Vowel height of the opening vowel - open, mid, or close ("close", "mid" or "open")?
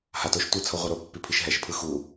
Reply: open